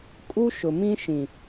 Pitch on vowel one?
high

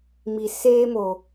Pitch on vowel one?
low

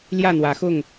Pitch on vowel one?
falling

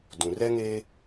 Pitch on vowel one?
low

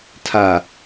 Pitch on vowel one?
low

